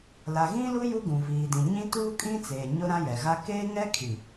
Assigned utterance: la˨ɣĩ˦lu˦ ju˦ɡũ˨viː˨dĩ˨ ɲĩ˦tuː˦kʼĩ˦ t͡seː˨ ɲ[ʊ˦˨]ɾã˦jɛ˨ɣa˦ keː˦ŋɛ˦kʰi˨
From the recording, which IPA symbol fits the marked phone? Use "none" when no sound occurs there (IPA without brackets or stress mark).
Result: ʊ˦